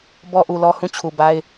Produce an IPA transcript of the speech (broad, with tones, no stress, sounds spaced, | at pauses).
b ɔ˦ ʔ u˨ l ɔ˦ h ũ˦˨ t͡ɕʰ u˨ b a˦ ɪ̯